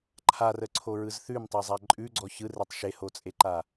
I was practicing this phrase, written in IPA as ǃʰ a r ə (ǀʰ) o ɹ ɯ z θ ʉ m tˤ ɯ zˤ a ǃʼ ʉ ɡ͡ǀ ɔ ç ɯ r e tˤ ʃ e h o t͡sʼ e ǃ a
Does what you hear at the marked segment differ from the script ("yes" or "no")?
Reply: no